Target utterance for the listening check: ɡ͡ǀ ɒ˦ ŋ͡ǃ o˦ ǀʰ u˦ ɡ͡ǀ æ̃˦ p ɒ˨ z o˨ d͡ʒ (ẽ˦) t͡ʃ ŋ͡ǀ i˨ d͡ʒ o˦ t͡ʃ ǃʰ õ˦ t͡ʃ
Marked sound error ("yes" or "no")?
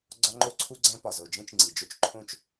no